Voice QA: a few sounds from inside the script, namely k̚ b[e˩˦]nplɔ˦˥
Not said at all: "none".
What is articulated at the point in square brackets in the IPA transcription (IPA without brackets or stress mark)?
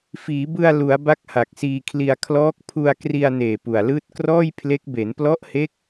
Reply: e˩˦